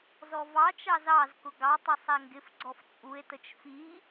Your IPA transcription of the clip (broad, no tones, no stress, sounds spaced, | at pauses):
z ɔ v ɑ t͡ʃ ɑ z ɑ z k ʊ ɡ ɑ tˤ ʌ sˤ æ ŋ ɡ ɪ f ɡ͡ǀ ɔ f t͡sʼ u e̯ t ə t͡ʃ f i